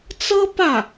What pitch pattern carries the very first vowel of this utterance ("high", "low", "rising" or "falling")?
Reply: high